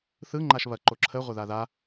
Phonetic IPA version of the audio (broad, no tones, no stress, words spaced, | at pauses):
θɯ ŋ͡ǃaʃβɐ ǃoǁʰə ʁʷɐðaða